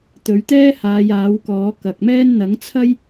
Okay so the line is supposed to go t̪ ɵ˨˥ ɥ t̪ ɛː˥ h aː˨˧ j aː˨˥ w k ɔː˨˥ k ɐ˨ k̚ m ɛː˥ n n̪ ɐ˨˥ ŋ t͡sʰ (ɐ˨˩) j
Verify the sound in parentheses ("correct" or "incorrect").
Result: incorrect